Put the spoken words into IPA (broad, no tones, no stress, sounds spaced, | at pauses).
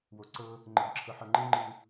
w o ǀ ɤ | ŋ͡ǃ ɯ ɡ ǁʰ ɤ ħ ɤ ŋ͡ǃ ɯ ŋ͡ǃ ɯ